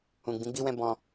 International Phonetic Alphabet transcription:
ũ˨ɡ͡bĩ˨˦ɡ͡bi˦wɛ̃˦ bɔ̃˧

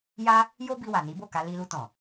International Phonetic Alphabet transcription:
ja˦ | jo˦bi˧ wa˨ni˨˦bo˦˨ka˧ li˧lu˧tɔ̃˨

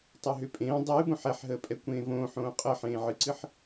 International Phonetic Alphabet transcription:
tˤoɦʏpʼẽː dˤɨːbõħ ɛħɦəːpʼɛkʷẽː võːħõː qʼəːħẽːʕɨǀɨħ

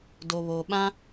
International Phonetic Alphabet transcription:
do˨βo˨ɓã˦

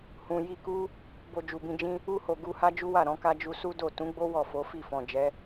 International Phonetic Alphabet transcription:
hũ˨ ji˧ku˦ | bo˧d͡ʒu˨bĩ˧d͡ʒĩ˦ | u˧ho˨ ɡu˧ha˦d͡ʒu˦wa˦˨ ɾɔ̃˨˦ka˦ d͡ʒu˧su˦do˦˨ tũ˨˦ɡ͡bo˦ wɔ˦˨fo˨˦fi˦˨ fɔ̃˨d͡ʒɛ˨˦

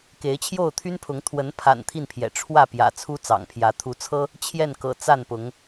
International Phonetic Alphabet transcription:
ke˨˦ɪ̯t͡ɕʰjo˥˨ʊ̯t̪ʰy˦npʰʊ˨˦ŋ t̪ʰwə˨˦npʰa̰˨˩n t̪ʰi˥˨npʰjɛ̰˨˩ ʈ͡ʂʰwä˥˨pjä̰˨˩ t͡sʰu˦t͡sɑ̰˨˩ŋpʰjä˨˦ t̪ʰu˨˦t͡sʰɤ˦ | t͡ɕʰjɛ˥˨nkɤ̰˨˩ t͡sa˥˨npʊ˨˦ŋ

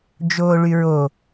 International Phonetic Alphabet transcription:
d͡ʒoːɭyɹo

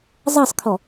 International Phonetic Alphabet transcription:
zˤɑsˤkʰɔ

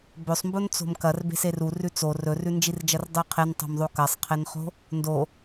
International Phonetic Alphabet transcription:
bɵsˤmbont͡so̤m kɐr be̤serurʉ t͡so rɵrʉnd͡ʒird͡ʒɐr dˤʉqʰentˤo̤mðˤo kɐsˤqʰenχo̤ | ndo

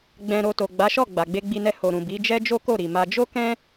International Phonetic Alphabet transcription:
ɡ͡bɛ̃˨ɾo˨ to˨ɡ͡ba˨˦ʃɔ˦˨ ɡ͡ba˨ɡ͡be˧ɡ͡bi˧nɛ˧ ho˨ɾũ˨ bi˨˦d͡ʒɛ˦ d͡ʒo˦ko˦˨ɾi˨ ma˧ d͡ʒo˦kɛ̃˦

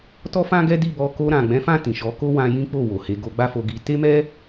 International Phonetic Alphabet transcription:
tɔ˦fã˦ɡɛ˦ di˦˨bɔ˧ ko˧ɾã˨ ɡ͡bɛ̃˨˦fã˦˨ tĩ˨ʃɔ˨˦ ko˦wã˧ jĩ˦k͡po˦˨wo˨he˧ ɡo˧ɡ͡ba˦ fo˧ɡi˧ te˦mɛ˦

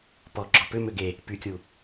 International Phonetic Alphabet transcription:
pɔ ɡ͡ǁɔpʏ mʏɡe | pykʲu

